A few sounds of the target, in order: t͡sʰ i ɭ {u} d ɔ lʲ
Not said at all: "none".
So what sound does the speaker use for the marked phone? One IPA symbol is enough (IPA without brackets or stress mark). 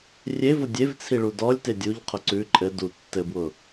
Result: u